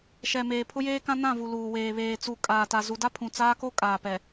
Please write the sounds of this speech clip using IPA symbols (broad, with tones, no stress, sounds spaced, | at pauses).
ʃ ɛ˨ m eː˨ pʰ ʊ˦ j eː˦ k ã˦ n ã˦˨ v u˨ l uː˨ w eː˨ β eː˨ t͡s u˨ kʼ aː˨ t a˨ z u˨ d a˦ pʰ ũ˨ t͡s aː˦ k o˦ kʼ aː˨ p ɛ˨